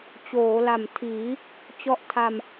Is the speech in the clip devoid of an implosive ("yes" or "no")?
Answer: yes